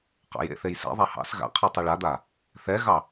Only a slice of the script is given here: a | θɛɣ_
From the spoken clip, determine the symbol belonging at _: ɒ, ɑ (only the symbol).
ɑ